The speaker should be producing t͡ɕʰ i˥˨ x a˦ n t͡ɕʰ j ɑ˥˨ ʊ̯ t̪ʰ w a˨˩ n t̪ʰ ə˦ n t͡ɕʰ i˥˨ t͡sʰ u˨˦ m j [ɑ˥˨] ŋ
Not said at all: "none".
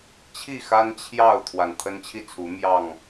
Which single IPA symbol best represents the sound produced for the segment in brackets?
ɑ˨˩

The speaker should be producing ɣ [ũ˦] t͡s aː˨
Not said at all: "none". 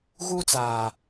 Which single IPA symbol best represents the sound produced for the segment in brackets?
u˦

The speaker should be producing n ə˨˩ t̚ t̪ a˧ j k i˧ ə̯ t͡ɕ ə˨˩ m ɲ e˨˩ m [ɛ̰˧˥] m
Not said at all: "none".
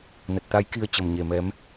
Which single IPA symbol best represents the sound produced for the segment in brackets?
ɛ˨˦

